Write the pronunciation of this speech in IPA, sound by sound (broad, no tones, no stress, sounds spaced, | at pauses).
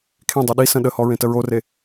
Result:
kʰ ẽ dˤ o ɗ i s ə̃ ɗ ə h ɔ ɹ ẽ t ə ɹ o r e